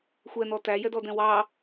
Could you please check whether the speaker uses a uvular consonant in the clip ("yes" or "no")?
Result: no